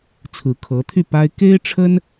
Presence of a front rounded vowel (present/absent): present